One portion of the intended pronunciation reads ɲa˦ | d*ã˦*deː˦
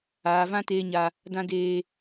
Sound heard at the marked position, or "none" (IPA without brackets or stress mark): ã˦